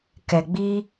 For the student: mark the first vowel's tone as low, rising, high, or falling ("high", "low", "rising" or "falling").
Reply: low